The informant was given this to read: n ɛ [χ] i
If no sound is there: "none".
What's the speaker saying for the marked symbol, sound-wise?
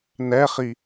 χ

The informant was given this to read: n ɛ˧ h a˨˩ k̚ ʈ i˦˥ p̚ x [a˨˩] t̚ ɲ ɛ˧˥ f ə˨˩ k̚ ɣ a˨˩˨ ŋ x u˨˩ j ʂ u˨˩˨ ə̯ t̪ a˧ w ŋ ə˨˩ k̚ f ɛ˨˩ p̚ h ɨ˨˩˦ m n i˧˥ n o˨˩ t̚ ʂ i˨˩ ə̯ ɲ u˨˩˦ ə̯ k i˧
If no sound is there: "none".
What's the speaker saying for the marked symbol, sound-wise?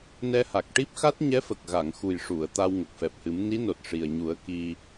a˦˥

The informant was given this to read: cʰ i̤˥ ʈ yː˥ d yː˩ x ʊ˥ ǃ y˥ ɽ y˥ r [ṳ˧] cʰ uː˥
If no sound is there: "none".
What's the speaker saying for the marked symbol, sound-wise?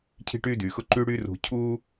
ṳ˧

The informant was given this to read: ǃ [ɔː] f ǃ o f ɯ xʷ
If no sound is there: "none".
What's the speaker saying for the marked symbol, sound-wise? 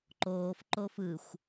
oː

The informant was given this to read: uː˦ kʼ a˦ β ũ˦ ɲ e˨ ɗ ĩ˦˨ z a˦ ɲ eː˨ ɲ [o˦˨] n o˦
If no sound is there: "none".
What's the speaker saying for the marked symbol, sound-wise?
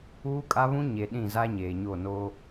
o˦˨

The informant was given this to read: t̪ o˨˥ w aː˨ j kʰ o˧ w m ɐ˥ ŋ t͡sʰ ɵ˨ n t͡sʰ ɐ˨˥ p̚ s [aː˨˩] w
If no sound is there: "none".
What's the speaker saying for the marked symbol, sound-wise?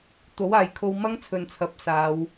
aː˨˧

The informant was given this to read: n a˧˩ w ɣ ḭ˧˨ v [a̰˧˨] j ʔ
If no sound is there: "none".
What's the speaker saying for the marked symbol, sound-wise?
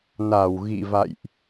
a̰˧˨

